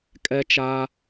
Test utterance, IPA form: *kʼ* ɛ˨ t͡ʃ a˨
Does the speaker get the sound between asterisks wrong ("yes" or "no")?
no